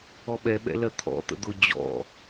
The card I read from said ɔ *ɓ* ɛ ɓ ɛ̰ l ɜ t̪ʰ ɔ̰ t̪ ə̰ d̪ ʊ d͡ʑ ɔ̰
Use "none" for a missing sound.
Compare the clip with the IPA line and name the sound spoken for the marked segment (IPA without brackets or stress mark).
ɓ